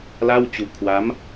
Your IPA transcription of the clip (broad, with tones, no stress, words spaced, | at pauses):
la˥˩wt͡ɕu˦˥ʔ kʰwa˦˥m